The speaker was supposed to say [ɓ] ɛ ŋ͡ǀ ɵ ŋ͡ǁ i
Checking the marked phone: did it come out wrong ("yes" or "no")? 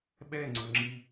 no